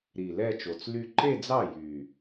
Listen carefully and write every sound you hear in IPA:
ɾ i˨˩ l ɛ˥˧ t͡ʃ o˨˩ t͡s l y˥˧ ǃ e˥˧ d͡z ɑ˥˩ j y˨˩

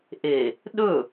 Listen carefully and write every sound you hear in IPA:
ʔ e | ɗ ɵ

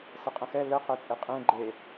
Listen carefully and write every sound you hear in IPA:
s ə qʼ ə̃ x ɛ l ə q ɛ t͡sʼ e qʼ ẽ ɡ͡ǃ e

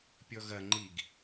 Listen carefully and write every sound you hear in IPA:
pʲ ɔ ɣ ɐ ŋ͡ǃ i ɡ

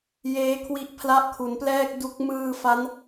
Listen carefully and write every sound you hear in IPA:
j eː˦˥ kʰ w i˦˥ ʔ pʰ l a˦˥ ʔ kʰ u˩˦ n p l ɛː˥˩ k̚ d u˦˥ k̚ m ɯː˧ f a˦˥ n

